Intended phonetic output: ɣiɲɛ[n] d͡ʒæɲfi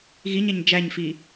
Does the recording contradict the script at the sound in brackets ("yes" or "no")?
yes